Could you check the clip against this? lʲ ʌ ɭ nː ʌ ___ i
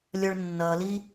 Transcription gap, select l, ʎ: l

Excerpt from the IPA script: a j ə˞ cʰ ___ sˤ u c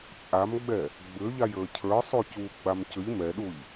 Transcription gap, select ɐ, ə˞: ə˞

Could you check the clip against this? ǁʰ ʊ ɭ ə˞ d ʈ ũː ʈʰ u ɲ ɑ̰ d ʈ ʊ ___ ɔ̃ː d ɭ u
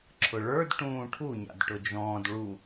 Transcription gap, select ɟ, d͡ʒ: d͡ʒ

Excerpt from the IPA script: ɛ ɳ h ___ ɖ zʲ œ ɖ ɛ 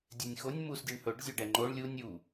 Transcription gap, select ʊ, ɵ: ɵ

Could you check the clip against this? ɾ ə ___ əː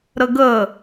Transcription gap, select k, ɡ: ɡ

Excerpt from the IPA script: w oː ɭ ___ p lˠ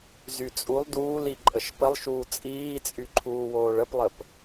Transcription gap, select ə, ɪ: ə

